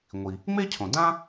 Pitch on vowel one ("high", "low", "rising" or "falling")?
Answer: low